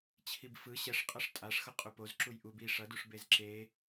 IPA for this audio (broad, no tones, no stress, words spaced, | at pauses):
t͡ɕʰibfɯ ɕɛʂqʼʌʂ tʼaʂxʌ qʼupoz ǁujʔub i ʂʌduʂ bezǁe